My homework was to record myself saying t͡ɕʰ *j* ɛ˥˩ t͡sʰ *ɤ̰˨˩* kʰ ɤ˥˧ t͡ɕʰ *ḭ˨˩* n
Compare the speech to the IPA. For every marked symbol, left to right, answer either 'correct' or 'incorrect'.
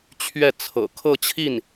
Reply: incorrect: ɥ, correct, incorrect: i˥˩

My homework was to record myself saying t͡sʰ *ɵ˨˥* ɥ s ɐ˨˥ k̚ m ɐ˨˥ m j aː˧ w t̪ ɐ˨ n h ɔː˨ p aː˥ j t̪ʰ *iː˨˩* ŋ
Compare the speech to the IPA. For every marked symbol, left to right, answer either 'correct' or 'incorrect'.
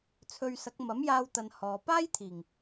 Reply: incorrect: ɵ˧, correct

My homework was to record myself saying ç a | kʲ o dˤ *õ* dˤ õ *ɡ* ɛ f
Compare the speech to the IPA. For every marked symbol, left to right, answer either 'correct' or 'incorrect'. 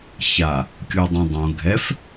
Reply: correct, incorrect: ɡʱ

